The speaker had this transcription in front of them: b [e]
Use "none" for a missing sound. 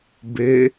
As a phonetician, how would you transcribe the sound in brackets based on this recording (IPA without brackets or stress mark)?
e